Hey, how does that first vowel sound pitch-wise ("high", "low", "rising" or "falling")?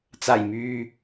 low